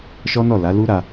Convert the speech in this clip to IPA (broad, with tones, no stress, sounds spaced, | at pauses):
ʃ ɔ˦ n ɔ˦˨ l a˨˦ l u˦ ɾ a˧